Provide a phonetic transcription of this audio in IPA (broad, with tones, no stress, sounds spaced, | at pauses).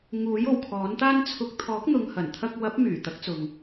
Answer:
ŋ uː˨˥ j o˨˩ w kʰ ɔː˨˥ n t̪ aː˥ n t͡sʰ ʊ˧ k̚ t̪ʰ ɔː˨˥ k̚ n̪ ʊ˨ ŋ h ɐ˨˩ n t̪ʰ ɐ˧ k̚ w ɐ˨˥ p̚ m yː˨˩ t̪ ɐ˨˥ k̚ t͡s ʊ˨ ŋ